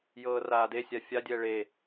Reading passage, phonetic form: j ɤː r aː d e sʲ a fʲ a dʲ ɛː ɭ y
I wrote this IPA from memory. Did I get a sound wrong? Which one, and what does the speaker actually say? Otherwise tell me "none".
y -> e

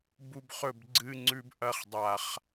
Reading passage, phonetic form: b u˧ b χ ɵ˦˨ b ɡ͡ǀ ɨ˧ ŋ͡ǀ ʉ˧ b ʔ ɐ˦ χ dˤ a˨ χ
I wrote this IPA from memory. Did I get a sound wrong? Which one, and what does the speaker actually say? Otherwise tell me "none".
none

